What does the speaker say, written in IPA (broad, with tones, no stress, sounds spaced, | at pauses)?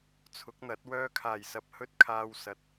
t͡sʰ ʊ˨˥ k̚ n̪ ɐ˨˥ t̚ w œː˧ kʰ aː˨˩ j s ɐ˧ p̚ h ɵ˥ t̚ kʰ aː˧ w s ɐ˨˥ t̚